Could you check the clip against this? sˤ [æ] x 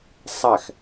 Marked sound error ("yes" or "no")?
no